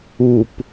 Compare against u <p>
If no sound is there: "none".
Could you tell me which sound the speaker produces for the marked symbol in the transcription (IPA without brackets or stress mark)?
p